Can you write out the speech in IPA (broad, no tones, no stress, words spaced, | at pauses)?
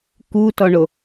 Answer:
kutɔɳo